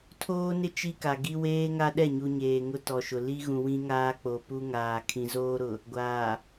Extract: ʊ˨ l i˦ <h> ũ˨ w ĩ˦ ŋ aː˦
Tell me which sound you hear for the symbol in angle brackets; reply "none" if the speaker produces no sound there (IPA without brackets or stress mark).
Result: ɣ